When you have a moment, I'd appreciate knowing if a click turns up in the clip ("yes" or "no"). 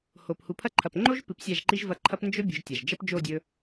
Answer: yes